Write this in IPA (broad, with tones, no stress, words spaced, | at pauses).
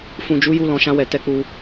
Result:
fũ˨d͡ʒu˨˦ju˧ lɔ̃˨ʃã˧wɛ˨ tɛ˧k͡pu˧